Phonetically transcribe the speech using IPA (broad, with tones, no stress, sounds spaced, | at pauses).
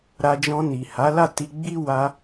ɾ a˧ d͡ʒ ɔ̃˧ n i˨ h a˨˦ l a˦˨ t i˧ ɡ͡b i˦ w a˧